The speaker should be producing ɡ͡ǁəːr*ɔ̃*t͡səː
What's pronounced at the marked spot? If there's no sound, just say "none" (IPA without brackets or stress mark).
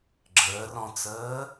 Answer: ɔ̃